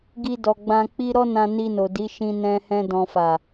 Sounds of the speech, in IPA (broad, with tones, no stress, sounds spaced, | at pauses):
ɡ i˧ d ɔ˨ ɡ͡b ã˧ k͡p i˦ ɾ ɔ˦ n ã˧ n i˧ n o˨ d i˨˦ ʃ ĩ˧ n ɛ̃˧ h ɛ̃˧ d ɔ̃˨ f a˨